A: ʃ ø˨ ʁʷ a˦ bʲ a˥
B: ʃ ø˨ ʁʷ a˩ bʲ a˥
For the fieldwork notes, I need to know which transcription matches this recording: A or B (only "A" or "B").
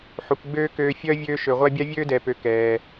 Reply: A